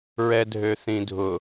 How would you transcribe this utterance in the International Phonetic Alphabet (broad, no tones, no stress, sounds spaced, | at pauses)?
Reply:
ɹ ɛ dʱ ø θ ĩ dʱ ʊ